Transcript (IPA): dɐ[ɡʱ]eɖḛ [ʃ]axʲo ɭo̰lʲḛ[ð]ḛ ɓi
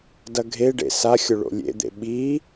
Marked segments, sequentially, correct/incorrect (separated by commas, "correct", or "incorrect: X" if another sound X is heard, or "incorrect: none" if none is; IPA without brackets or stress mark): correct, incorrect: s, incorrect: d̪